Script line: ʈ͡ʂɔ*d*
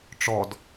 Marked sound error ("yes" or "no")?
no